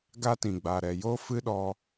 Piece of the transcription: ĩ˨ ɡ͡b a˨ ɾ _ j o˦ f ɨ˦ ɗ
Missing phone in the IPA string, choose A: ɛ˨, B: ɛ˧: A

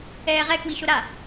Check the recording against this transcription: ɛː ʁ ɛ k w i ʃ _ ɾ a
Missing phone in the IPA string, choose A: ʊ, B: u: A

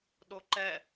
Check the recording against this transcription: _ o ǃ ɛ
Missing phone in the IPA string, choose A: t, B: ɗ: B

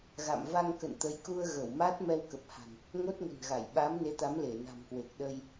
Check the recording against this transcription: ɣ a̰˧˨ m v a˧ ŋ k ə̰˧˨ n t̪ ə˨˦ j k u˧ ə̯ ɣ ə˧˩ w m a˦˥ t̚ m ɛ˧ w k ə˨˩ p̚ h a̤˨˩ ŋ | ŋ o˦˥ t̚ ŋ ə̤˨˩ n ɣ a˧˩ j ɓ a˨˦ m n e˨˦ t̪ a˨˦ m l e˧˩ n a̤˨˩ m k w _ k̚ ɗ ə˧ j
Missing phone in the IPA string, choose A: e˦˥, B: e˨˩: B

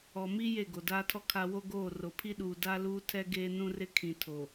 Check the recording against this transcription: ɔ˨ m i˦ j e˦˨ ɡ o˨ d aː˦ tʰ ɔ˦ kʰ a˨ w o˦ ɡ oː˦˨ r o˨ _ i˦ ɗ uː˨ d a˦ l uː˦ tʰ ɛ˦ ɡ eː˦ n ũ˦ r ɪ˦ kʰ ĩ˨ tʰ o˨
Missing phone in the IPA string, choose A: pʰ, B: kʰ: A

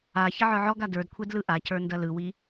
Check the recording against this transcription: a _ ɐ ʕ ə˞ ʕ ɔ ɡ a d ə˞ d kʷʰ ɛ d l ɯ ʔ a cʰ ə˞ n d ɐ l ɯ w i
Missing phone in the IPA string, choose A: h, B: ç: B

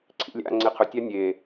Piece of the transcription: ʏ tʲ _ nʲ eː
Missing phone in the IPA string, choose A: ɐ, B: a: B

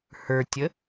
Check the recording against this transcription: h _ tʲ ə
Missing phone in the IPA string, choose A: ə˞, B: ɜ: A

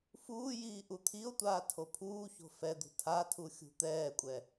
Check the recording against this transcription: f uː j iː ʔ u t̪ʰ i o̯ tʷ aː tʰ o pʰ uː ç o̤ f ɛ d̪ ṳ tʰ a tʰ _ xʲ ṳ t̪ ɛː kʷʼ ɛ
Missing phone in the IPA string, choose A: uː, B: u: B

